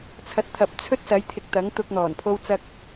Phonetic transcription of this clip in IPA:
t͡sʰ ɐ˨ t̚ t̪ʰ ɐ˨ p̚ t͡sʰ ɵ˥ t̚ s ɐ˨˥ j t̪ʰ ɪ˨ k̚ t̪ ɐ˨˥ ŋ t̪ ʊ˧ k̚ n̪ ɔː˨˩ n pʰ o˥ w t͡s ɐ˥ k̚

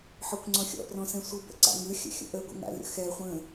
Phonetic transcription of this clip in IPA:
ħ ɔ kʷ ŋ͡ǀ ɔ̃ xʲ ɔ̰ p r ɔ̃ s ɛ̃ sʷ ɯ b ə̰ ǀ a̰ ŋ ɯ xʲ ə̰ xʲ ə̰ ʔ ə ɡʷ ə̰ ŋ a̰ lʲ ə̰ x ɛ χʷ ə̃

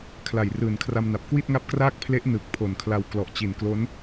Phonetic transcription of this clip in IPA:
kʰ l a˨˩ j r ɯː˨˩ n kʰ r a˧ m n a˨˩ p̚ k w i˥˩ t̚ ŋ a˦˥ p̚ k r aː˥˩ k̚ pʰ l e˦˥ ʔ n ɯː˨˩ k̚ pʰ o˨˩ n kʰ l a˧ w k l ɔ˨˩ ʔ t͡ɕ i˨˩ n k l o˦˥ n

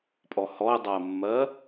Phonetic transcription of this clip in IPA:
pʼ ɔ h ɔ ɪ̯ dˤ a ə̯ mː ɜ

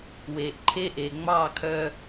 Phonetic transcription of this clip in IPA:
w eː˩ ʔ ǃʰ e˥ ʔ e˩ ŋ͡m ɑː˥˩ kʰ œ˧

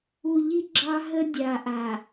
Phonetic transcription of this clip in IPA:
u˨ ʎ i˦ ɡ͡ǁ ɑ˦ ɦ ə˦ dʲ a˨ ʔ a˨

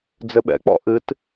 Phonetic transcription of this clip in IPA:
d͡z ɘ ɓ ɛ̰ k͡p ɔ̰ ʔ ɨ t

